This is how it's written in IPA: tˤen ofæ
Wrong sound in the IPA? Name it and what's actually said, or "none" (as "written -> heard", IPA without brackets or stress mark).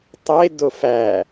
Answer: n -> d